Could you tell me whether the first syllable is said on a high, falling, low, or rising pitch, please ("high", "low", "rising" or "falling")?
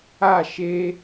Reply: falling